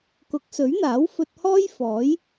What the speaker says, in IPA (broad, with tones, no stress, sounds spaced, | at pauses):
k ʊ˨˥ k̚ s ɵ˨˥ ɥ n̪ aː˨˥ w f ɵ˧ t̚ h ɔː˥ j f ɔː˨˥ j